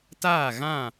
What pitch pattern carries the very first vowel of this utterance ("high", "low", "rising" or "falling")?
falling